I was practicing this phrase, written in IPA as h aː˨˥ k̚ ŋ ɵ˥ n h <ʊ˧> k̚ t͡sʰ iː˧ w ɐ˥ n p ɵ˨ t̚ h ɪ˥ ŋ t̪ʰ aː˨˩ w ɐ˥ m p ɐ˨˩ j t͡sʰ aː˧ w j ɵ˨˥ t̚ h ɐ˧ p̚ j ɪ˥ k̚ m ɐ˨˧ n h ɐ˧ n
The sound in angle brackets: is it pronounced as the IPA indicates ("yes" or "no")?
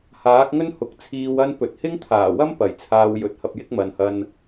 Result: no